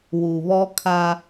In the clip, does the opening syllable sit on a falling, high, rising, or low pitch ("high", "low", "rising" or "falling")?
low